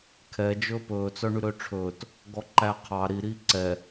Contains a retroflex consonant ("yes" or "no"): yes